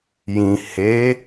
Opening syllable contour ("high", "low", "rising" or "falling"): low